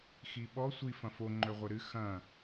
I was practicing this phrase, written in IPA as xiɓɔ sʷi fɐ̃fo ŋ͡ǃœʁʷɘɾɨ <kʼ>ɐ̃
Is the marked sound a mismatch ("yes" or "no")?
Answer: yes